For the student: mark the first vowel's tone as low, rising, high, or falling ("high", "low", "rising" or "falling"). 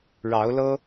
rising